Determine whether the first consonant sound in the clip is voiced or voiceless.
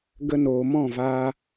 voiced